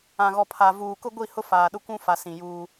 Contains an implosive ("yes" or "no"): yes